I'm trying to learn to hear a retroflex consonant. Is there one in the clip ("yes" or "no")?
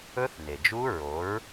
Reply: no